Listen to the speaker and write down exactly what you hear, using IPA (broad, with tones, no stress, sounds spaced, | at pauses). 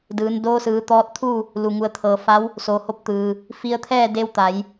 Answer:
d ɯː˩˧ n d oː˧ s ɯː˩˧ t̪ ɔː˧ t̚ t̪ʰ u˥˨ | l u˩ ŋ u˩˧ ə̯ t̪ʰ ɤː˩ f a˧˥ w | s oː˩ h o˧ p̚ t̪ ɯː˩ | f i˧ ə̯ t̪ʰ ɛː˥˨ d e˧˥ w t̪ a˩˧ j